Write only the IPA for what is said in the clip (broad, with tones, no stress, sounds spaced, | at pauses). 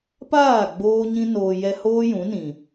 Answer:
p aː˦˨ ɡ͡b oː˧ ɲ ĩ˧ n oː˨ j ɛ˧ h oː˦ j ũ˨˦ n ĩ˨